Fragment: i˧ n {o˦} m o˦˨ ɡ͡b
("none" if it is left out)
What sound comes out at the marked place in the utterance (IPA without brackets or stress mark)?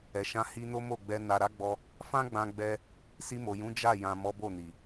o˦